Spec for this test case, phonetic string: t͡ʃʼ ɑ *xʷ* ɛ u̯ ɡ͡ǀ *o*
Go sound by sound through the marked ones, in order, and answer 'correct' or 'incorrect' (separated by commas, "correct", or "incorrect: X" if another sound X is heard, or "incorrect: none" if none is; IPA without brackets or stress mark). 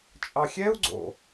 incorrect: xʲ, incorrect: o̰